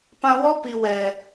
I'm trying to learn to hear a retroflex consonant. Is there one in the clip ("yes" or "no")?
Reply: no